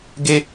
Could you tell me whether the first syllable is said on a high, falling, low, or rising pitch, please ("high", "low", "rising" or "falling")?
high